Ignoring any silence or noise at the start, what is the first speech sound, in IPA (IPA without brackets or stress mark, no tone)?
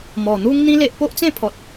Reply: m